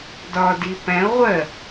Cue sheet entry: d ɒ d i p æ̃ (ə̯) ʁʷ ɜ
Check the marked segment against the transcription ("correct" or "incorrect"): incorrect